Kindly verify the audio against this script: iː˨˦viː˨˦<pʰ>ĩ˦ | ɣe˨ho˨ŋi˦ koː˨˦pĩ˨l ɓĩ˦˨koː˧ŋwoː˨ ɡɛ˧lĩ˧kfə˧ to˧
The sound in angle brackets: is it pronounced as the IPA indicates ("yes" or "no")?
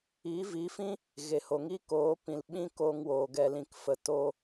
no